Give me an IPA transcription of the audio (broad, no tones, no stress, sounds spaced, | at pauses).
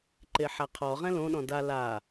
ǃ e ħ a qʰ ɔ ʁ ɛ̃ l õ ɗ ɔ̃ d a l a